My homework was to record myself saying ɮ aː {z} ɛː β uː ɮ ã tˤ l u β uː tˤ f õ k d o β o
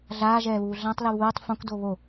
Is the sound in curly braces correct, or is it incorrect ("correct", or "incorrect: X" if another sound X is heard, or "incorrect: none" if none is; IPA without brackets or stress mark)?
incorrect: ʒ